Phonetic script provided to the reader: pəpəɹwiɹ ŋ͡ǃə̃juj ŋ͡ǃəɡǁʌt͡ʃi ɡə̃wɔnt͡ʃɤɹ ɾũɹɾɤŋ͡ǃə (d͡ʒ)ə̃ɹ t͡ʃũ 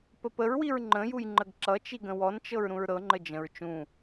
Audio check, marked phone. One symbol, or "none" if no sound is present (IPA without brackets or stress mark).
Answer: d͡ʒ